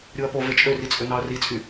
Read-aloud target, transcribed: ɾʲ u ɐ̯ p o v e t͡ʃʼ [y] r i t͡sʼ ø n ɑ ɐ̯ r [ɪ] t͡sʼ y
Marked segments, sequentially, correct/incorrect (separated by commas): incorrect, incorrect